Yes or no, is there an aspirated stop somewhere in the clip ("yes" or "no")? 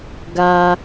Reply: no